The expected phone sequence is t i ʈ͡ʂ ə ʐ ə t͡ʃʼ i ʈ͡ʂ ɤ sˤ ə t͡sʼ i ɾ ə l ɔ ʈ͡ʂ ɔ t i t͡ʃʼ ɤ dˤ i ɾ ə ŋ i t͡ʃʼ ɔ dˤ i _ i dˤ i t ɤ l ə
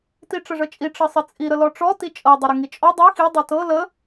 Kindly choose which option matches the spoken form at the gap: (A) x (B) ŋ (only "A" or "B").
A